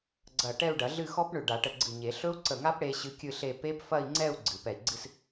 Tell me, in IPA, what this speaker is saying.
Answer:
ɡ͡ǀɐ˧˩ ʈɛ˥˧u̯ɖɐ˨˩˦ɮɨ˥˧ xɔ˦˥pɳʏ˧˩ ɖa˨˩˦ʈə˧˩ɡ͡ǀɨ˧˩ɲe˨˩˦ ɬɵ˦˥u̯ǀə˧˩ŋa˦˥p ɽe˦˥ɕɨ˦˥kʲɨ˥˧ɬe˥˧ pe˦˥pfɐ˥˧i̯ŋ͡ǀɛ˥˧u̯ ɡ͡ǀɨ˨˩˦pɛ˧˩i̯ɡ͡ǀɨ˥˧s

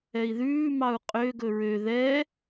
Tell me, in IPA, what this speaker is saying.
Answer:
ɛi̯ðʉː mɑu̯qʼøɡɵ ɹø ðɛ

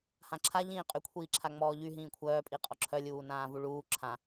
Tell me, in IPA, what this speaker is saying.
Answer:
hãǁʰa ʎĩːqʼykʷʰiːǁʰa ŋ͡mɔːʎyɦĩː kʷʰœːpʼiqʼɔ ǁʰœlʲuːnãː vuɭuː ǁʰã

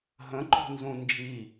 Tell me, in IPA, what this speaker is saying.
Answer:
ɦə̃ǃṳnzũ nd͡ʒi

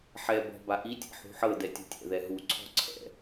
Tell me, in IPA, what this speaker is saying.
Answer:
ħɛ bɔ̤ baʔitʲɛ̰ ħṳħɤ dɛtʲṳtʲɛ̰ ðɛɦuǀʰɔ̤ ǀʰɛ̰

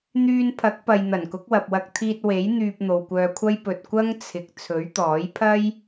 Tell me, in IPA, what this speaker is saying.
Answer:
n̪yː˧npʰɐ˨˥k̚pɐ˨j n̪ɐ˨˩nkʊ˨˥k̚wɐ˨p̚wɐ˧k̚ t̪ʰiː˧t̚ we˨˥j n̪yː˧p̚n̪o˨wkʷœː˧kʷʰɐ˥j pɵ˨t̚ kʷɐ˥ŋt͡sʰɪ˨k̚ t͡sʰɵ˨˥ɥt̪ɔː˨˥j pʰɐ˥j

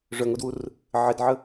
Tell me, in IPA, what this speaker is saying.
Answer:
ʐœŋodwur | ʕɪdʕə

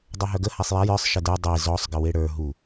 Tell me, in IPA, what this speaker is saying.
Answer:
dˤœɦœɡə hasˤjaj ə˞sˤ ʃədə˞ dˤe zɔsˤ ɡəweɽə˞ ɦu

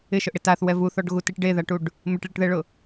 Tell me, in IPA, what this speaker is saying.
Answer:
ɪʃʊʔɽɪ taθwɛ vuθɔɖɣutiʈ ɖeðaʈuɖ | mɪʈɭiʈðɛɭʊ

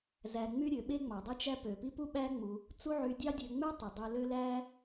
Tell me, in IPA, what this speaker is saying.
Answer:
zæ˧ŋ͡my˦ɾʲø˨˦ɓe˦ ŋ͡mɑ˨dˤi˦t͡ʃæ˦ pø˨pi˦ pu˦ɓæ˦ŋ͡mu˧ | t͡su˦ʕy˧dʲɑ˦ dʲø˧ŋ͡mø˦tˤu˨ dˤø˧lø˦ læ˦

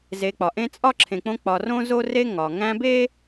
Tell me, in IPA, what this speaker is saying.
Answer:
ze˨k͡pɒ˩ ʔẽ˦t͡sʼɒ˥ǁʰẽ˨k͡põ˦ k͡pɒ˨rõ˥zo˥ re˦ŋɒ˩ ŋæ̃˦be˥

